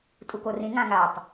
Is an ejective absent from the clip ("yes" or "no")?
no